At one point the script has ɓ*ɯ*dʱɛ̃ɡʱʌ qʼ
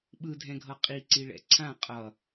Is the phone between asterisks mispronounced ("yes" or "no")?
no